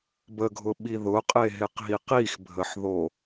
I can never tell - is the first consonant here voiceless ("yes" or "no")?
no